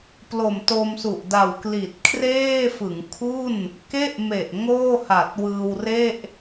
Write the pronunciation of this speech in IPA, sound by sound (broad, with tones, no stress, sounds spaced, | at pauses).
p l o˨˩ m t o˧ m s u˨˩ ʔ d a˨˩ w k l i˨˩ t̚ kʰ r eː˥˩ f ɯ˩˦ ŋ kʰ u˥˩ n | k e˥˩ ʔ m e˨˩ ʔ ŋ oː˥˩ h a˨˩ t̚ w ɯː˧ w r e˥˩ ʔ